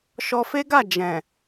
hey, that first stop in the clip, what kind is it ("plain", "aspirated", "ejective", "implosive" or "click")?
plain